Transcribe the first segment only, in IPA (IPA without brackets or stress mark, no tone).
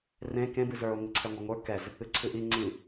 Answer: r